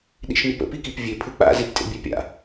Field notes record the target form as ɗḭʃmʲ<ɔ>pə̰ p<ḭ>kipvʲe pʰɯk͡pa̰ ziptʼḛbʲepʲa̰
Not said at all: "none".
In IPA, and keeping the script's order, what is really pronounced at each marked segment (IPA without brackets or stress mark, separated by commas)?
ʊ, i